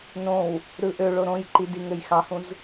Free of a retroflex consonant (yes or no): no